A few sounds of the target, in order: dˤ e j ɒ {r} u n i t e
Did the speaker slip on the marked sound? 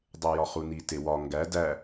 yes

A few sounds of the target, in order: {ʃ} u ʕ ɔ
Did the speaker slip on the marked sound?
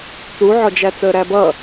yes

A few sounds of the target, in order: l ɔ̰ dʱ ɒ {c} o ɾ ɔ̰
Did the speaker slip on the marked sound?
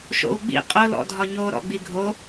yes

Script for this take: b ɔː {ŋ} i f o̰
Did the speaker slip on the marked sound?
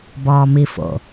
yes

